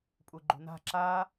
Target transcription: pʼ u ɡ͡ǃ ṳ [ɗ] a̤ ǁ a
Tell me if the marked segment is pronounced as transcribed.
no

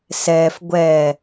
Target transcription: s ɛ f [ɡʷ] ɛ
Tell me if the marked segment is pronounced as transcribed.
yes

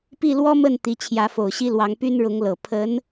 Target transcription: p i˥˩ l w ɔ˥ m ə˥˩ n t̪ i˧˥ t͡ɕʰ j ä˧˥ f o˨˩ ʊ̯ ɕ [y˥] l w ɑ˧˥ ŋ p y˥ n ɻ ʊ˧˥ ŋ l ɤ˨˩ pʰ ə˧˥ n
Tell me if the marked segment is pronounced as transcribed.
no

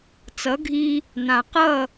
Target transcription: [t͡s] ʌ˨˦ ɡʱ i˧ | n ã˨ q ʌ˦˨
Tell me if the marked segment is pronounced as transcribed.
yes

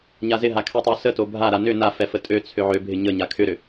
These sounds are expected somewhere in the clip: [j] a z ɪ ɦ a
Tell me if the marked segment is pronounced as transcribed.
no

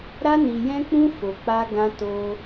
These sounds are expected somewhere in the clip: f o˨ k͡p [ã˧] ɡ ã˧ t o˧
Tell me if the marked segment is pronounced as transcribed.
no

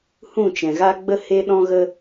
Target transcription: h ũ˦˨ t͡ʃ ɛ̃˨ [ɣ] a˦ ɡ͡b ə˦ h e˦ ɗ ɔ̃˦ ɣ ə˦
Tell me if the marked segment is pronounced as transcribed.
yes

